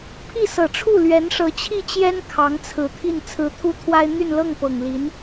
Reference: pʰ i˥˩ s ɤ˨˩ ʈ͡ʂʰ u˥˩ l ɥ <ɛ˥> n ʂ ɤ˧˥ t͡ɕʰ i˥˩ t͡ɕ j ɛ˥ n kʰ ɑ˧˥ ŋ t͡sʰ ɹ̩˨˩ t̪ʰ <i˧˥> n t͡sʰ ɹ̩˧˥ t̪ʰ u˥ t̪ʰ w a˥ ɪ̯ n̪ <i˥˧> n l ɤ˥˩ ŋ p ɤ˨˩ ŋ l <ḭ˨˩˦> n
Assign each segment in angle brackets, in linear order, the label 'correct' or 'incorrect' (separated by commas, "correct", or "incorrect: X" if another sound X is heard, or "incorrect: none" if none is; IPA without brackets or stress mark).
incorrect: ɛ˧˥, incorrect: i˥˩, incorrect: y˥˧, incorrect: i˧˥